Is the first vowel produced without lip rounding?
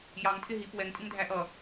yes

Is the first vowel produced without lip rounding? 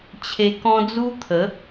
yes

